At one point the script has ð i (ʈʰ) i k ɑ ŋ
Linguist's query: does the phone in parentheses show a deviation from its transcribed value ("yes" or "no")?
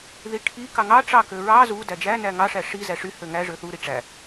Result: no